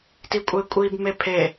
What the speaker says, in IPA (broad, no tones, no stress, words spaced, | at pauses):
tikʷʼekʷʼib mepʰe